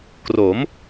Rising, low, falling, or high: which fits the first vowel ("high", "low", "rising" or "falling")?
rising